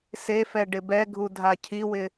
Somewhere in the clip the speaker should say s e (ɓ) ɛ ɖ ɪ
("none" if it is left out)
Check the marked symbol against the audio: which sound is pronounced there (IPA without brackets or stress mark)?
f